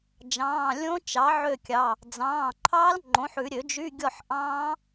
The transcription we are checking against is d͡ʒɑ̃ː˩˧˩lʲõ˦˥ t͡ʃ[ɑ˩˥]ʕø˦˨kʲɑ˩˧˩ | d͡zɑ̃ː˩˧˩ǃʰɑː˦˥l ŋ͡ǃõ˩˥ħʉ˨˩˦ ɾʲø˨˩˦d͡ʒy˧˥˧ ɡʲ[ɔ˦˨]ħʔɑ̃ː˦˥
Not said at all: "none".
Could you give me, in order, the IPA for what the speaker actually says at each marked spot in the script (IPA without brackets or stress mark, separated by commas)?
ɑ˩˥, ɔ˦˨